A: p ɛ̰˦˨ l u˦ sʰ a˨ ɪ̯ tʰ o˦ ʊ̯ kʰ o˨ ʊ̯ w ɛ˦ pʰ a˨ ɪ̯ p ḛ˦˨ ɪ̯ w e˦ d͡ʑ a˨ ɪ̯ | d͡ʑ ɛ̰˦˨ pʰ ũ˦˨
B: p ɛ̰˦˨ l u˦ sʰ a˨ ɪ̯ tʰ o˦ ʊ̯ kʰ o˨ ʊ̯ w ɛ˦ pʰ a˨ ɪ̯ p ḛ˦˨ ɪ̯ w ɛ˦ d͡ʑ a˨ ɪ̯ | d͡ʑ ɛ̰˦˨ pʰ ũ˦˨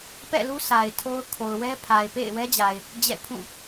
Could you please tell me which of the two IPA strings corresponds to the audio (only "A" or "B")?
B